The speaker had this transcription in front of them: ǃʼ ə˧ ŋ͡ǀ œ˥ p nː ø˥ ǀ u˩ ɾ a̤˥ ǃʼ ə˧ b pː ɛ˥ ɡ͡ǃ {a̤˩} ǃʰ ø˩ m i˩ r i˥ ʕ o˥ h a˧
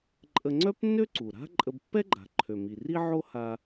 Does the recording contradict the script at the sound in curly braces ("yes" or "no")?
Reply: no